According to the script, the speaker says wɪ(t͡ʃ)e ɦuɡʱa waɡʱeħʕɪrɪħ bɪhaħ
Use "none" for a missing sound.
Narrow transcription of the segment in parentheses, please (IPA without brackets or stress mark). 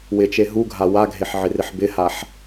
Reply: t͡ʃ